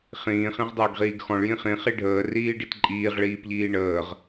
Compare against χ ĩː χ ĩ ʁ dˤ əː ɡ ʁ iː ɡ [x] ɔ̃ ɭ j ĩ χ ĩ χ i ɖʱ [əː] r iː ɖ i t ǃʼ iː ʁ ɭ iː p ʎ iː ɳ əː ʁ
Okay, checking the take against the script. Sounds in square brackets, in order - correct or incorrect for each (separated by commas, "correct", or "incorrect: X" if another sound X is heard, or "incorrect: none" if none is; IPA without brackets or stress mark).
correct, correct